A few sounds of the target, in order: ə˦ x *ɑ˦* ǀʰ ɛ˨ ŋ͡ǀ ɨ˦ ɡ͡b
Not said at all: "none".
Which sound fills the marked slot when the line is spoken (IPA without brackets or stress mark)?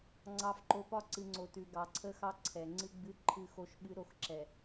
ɑ˦